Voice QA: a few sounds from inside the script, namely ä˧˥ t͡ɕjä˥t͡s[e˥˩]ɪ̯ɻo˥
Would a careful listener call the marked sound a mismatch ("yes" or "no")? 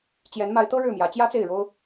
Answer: no